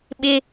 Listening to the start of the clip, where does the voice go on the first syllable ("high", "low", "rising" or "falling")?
high